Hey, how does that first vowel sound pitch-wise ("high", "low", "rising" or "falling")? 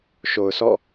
low